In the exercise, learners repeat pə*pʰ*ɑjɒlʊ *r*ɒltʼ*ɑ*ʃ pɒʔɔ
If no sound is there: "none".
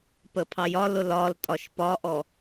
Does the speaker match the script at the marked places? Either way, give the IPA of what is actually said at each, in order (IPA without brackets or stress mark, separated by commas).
pʰ, l, ɒ